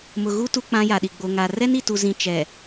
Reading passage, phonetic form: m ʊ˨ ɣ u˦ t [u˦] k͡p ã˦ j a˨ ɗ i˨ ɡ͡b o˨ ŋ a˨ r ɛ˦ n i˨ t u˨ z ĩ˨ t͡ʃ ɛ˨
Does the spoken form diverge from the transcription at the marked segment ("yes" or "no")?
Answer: no